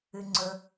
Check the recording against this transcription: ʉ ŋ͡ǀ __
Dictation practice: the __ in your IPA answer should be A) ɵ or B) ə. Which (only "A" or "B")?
A